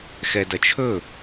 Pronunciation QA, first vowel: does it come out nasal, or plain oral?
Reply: oral